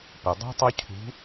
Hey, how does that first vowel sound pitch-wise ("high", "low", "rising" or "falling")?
low